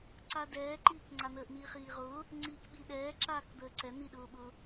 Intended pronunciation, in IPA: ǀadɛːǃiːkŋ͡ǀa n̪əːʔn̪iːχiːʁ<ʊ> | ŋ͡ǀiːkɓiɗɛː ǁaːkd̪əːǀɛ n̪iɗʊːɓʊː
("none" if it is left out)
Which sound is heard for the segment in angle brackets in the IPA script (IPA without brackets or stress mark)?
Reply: ʊː